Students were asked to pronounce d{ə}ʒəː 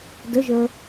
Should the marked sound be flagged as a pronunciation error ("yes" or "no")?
no